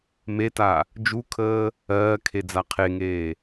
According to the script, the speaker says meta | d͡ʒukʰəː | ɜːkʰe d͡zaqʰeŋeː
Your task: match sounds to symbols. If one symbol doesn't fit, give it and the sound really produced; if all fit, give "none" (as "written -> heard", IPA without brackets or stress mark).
none